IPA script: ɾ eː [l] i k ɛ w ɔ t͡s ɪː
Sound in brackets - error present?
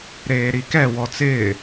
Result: yes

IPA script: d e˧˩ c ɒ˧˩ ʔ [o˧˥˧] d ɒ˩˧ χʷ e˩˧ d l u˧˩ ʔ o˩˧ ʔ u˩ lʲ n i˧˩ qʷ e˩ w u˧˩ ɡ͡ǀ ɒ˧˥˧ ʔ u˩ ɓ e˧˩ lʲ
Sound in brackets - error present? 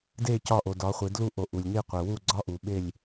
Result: yes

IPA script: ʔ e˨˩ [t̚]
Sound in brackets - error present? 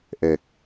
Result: yes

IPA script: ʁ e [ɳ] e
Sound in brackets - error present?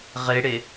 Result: yes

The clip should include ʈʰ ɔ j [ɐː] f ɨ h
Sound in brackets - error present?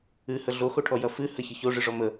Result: yes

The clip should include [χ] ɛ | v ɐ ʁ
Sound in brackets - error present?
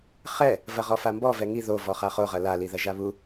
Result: no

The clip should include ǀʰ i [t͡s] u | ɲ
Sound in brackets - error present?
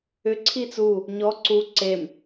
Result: no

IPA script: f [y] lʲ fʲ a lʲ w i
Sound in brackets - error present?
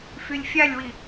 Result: no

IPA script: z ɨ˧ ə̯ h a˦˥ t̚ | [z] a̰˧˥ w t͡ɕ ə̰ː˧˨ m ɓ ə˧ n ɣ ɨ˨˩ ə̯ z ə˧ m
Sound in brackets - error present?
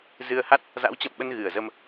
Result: no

